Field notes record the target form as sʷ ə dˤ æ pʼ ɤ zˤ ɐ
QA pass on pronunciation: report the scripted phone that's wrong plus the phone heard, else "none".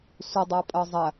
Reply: none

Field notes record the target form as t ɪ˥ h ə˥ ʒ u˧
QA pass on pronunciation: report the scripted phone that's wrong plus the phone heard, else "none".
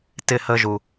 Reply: none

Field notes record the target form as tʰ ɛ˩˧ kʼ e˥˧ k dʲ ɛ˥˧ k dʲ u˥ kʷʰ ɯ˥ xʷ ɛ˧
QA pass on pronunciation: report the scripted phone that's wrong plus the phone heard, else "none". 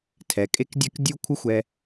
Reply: none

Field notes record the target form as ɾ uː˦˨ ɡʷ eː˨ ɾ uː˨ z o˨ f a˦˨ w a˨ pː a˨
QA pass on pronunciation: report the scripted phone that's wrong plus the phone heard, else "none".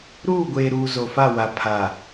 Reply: pː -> pʰ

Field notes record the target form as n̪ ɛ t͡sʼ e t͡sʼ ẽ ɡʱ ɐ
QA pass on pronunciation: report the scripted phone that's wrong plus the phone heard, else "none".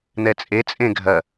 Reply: none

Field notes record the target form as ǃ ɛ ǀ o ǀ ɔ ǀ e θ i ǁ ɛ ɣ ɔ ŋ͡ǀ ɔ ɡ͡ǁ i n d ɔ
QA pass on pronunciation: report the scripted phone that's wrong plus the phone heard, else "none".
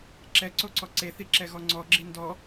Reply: ǃ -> ǁ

